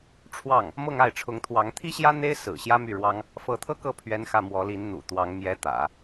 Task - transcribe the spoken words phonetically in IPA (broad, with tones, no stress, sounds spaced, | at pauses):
ʈ͡ʂʰ w ɑ˥˩ ŋ | m ɤ˥˧ ŋ a˥˩ ɪ̯ ʈ͡ʂʰ ʊ˧˥ ŋ t̪ʰ w ɑ˧˥ ŋ t̪ʰ i˥ ɕ j ä˥ n̪ e˥ ɪ̯ s ɹ̩˨˩ ɕ j ä˥ m y˥˩ ɻ w ɑ˥ ŋ | f ɤ˧˥ t̪ʰ ɤ˥ k ɤ˥˩ pʰ ɥ ɛ˥ n x ä˥˩ m w ɔ˧˥ l i˧˥ n n̪ ṵ˨˩ t̪ w ɑ˧˥ ŋ m j ɛ˧˥ t̪ ä̰˨˩˦